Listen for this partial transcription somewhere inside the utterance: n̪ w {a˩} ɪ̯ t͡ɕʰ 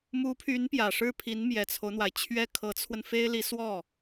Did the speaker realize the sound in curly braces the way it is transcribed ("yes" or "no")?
yes